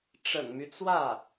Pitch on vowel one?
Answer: low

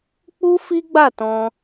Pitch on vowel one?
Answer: high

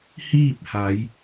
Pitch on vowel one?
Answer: falling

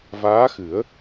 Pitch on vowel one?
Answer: rising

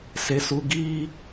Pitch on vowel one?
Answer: high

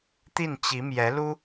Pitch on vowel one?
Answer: falling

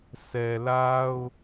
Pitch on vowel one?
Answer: low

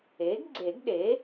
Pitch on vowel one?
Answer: rising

